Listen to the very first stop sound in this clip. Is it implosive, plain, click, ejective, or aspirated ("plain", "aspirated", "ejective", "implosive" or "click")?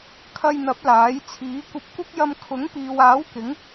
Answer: aspirated